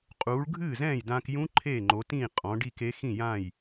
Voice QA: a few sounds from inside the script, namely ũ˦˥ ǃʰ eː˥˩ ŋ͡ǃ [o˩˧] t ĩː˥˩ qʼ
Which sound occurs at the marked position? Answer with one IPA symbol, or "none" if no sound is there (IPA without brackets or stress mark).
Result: o˩˧